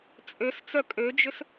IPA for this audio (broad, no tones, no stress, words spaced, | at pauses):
t͡sʼøst͡sœ kʼød͡ʒʏs